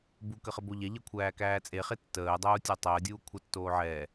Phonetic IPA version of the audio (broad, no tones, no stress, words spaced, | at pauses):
bukə χəboʎɛʎɛ kʷʰæːkæːt͡sʼeχe tːəːdˤuː tʲætˤəːdʲuː kʷʰətːoː ʕɛ